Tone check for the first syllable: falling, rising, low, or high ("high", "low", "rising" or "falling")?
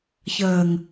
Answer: low